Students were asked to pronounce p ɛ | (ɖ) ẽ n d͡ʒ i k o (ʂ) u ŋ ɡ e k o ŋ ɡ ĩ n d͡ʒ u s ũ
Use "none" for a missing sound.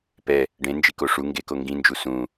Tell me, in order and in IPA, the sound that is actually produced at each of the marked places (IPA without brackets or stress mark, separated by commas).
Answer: ɖ, ʂ